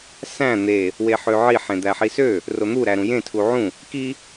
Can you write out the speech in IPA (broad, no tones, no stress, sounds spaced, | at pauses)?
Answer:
s æ̃ n̪ e | w e ħ ø ʕ i ħ ẽ d̪ æ ħ i s ø | r o n̪ u ɾ æ ɾ ũ j ẽ tʰ u ʕ ũ | k i